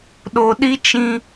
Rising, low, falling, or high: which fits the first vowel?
high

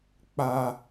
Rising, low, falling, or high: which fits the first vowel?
low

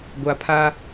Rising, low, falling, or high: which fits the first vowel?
low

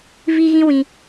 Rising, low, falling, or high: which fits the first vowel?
high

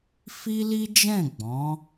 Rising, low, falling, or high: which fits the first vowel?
high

